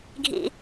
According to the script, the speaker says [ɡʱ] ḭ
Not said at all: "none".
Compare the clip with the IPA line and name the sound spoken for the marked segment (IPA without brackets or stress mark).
ɡʱ